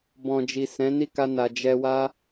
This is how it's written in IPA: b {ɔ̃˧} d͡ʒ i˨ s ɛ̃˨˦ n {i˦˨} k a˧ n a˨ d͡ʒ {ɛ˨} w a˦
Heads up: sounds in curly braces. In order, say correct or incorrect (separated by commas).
incorrect, correct, incorrect